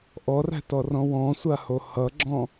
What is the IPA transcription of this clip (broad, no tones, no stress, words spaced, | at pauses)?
ʔɔræ̤tɔrɔ̃ wɔ̃sʷaho hʌɡ͡ǁɔ̃